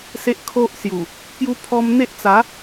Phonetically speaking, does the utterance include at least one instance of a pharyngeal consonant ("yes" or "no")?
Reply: no